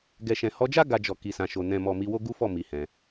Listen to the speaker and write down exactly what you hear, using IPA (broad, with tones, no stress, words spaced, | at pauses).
ɡɛ˨ʃɛ̃˨ hɔ˧d͡ʒa˦ ɡa˧d͡ʒɔ˨ ki˨sã˨ʃo˨ nɛ̃˨mɔ˨ mi˧wo˦ ɡu˦fɔ˦˨ mi˨˦hɛ̃˧